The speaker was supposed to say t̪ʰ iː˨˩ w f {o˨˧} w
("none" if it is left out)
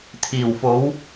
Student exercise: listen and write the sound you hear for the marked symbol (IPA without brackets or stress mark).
o˨˥